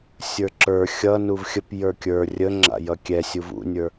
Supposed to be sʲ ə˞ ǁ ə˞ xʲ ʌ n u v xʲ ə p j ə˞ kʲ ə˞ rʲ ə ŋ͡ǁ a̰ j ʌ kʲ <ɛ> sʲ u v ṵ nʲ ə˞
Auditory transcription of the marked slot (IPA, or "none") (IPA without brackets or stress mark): ɛ